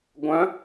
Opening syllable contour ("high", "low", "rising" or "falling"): rising